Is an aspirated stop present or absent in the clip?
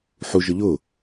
absent